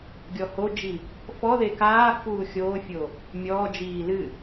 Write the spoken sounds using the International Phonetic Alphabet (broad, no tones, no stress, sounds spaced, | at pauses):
ɡʲ ɔ h o d͡ʒ i | f ɔ ð e k aː f uː xʲ oː fʲ o | mʲ ɔː d͡ʒ iː l ɨ